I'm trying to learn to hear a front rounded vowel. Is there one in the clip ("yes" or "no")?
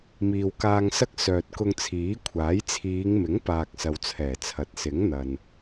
yes